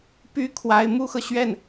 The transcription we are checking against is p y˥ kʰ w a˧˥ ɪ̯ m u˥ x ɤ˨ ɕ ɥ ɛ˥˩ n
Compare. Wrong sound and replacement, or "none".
none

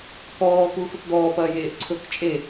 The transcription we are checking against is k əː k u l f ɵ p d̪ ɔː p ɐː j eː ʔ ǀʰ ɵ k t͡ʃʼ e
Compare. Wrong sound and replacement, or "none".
əː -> ɔː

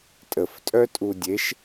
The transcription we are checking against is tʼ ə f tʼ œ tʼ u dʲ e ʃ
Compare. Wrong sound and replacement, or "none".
none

